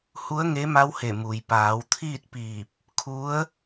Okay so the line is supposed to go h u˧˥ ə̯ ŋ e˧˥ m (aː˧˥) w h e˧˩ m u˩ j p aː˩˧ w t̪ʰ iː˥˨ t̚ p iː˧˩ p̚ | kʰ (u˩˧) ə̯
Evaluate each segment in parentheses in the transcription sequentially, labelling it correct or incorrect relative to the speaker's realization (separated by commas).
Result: incorrect, incorrect